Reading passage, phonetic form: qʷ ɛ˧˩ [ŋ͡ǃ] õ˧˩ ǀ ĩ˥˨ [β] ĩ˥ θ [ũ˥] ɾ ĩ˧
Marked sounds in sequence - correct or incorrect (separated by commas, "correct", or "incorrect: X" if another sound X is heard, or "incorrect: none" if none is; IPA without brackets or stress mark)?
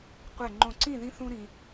correct, incorrect: ð, correct